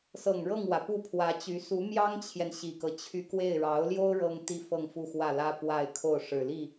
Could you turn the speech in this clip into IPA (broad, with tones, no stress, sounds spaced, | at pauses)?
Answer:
s ɤ˨˩ ŋ ɻ ɤ˥˩ ŋ w ä˩ p u˥˩ pʰ w ä˧˥ t͡ɕ y˧˥ s u˧˥ m j ɑ˥ ŋ t͡ɕʰ j ɛ˨ n ɕ i˨˩ k ɤ˦ t͡ɕʰ y˥˧ k w e˥˩ ɪ̯ ɻ ɑ˧˥ ʊ̯ l j o˥ ʊ̯ ɻ ɤ˥ ŋ t̪ i˥ f ɤ˥˧ ŋ f u˥˧ x w ä˥˩ l ä˥ p w a˥˧ ɪ̯ kʰ o˥˩ ʊ̯ ʂ ɻ̩˨˩ l i˥˩